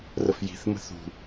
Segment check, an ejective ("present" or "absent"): absent